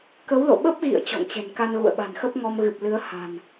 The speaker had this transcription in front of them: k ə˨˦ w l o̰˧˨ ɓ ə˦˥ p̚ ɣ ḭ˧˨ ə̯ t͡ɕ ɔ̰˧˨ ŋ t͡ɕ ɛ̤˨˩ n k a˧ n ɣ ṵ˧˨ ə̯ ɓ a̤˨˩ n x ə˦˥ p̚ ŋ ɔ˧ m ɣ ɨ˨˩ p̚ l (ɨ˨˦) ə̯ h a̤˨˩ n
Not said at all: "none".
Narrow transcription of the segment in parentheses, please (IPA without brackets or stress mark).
ɨ˨˦